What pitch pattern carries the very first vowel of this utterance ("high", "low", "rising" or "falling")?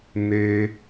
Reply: high